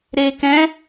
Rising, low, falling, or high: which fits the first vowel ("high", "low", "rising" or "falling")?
low